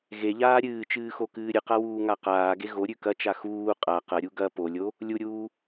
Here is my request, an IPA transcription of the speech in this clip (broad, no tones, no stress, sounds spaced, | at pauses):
ɣ e ʎ aː ɾʲ ɨː t͡ʃ ɨː x o k ɨː ɾʲ ɨ q a w uː ŋ a q aː ɡ e ɣ o ɾʲ ʉ k ɐ t͡ʃ a x uː qʼ a q ɐ ɾʲ u ɡ ɐ p o lʲ o | lʲ u ɾʲ uː